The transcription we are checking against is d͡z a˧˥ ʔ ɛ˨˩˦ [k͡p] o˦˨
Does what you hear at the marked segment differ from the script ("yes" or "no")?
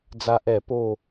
yes